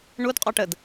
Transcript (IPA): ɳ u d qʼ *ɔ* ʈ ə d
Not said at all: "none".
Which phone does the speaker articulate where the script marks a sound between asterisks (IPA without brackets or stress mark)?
ɔ